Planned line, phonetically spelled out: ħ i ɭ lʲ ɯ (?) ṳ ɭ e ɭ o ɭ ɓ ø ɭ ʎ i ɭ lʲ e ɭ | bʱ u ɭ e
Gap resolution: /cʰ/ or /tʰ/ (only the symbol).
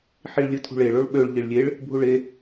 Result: tʰ